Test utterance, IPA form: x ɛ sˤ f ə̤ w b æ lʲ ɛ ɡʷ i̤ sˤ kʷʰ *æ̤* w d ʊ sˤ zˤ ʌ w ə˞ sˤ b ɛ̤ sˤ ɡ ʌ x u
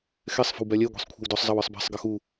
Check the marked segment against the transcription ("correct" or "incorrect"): incorrect